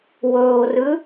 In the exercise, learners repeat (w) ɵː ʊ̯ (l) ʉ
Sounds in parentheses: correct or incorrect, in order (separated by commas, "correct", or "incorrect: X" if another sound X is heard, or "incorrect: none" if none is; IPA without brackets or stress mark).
correct, incorrect: r